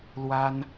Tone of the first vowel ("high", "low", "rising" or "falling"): high